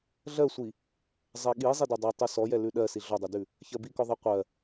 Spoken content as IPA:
ɮ ɜ sʷ i | zˤ ɛ ɠ i zˤ i d ɛ dˤ ɜ tˤ ʉ s ɔ j ɛ l ʉ ɗ ɜ s i ɮ ɔ dˤ ɛ d ʉ | ç ɜ b i k ɔ ðˤ i qʷ ɜ

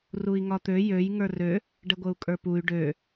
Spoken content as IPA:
r u i̯ ŋ ɒ t̪ ø j ø j ŋ ə˞ r ø | ɖ ə ɡʷ ə u̯ kʼ ə˞ p u y̯ ɖ ø

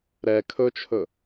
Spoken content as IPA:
ɾ ɛ kʰ ɵ t͡ʃʰ ɵ

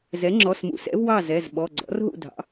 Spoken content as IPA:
z ɛ˩˥ ŋ͡ǁ ɔ˩˧˩ s m ṵ˩˧ s ɛ̰˩˥ v w ɑ˥˨ z ɛ˩˧˩ z ɓ ɔ˩˧˩ ɡ͡ǀ ɔ̰˩˥ r ɦ ṵ˥˨ dʱ ɑ̰˩˥

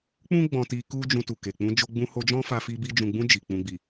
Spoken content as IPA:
k͡p ũ˦ ɡ͡b ɔ̃˦ t i˦ k u˦ d͡ʒ ũ˧ t u˨ k e˨ k͡p ũ˧ d͡ʒ o˧ ɡ͡b ũ˧ h o˧ d͡ʒ ɔ̃˦ f a˧ f i˧ b i˧ d͡ʒ ũ˨ ɡ͡b ũ˧ d͡ʒ i˨ k͡p ũ˨ ɡ͡b i˨

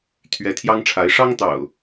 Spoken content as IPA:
t̪ʰ ɥ ɛ˨˦ t̪ʰ j ɑ˦ ŋ ʈ͡ʂʰ a˨˦ ɪ̯ ʂ ɑ˦ ŋ t̪ ɑ̰˨˩ ʊ̯

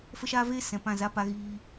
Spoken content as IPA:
f ə˦ ʃ aː˦ v eː˦ s ɛ̃˨ p ã˦˨ z a˦ p a˧ ɣ iː˧

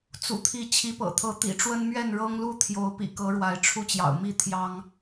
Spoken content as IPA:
t͡s ṵ˨˩ t̪ʰ i˨˦ t͡ɕʰ i˨˦ p ɤ̰˨˩ t̪ʰ ɤ˨˦ t̪ ḭ˨˩ ʈ͡ʂ w ə˦ n m ɥ ɛ˥˨ n ɻ ɤ˦ ŋ l u˥˨ t̪ʰ j o˨˦ ʊ̯ p ḭ˨˩ k ɤ˨˦ ɻ w a˨˦ ɪ̯ ʈ͡ʂʰ u˥˨ t͡ɕ j ɑ̰˨˩ ʊ̯ m i˥˨ t̪ʰ j ɑ˦ ŋ

